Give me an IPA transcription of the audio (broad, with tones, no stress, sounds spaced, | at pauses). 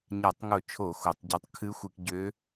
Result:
ɲ a˧˩˧ tˤ ŋ o˧˩˧ t͡ʃʰ o˧˩˧ x o˧˩˧ tˤ ɟ ɔ˧˥ tˤ kʰ ɨ˧˥ xʷ ɨ˧˩˧ k ɟ ø˧˥